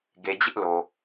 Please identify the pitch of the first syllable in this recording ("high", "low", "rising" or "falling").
low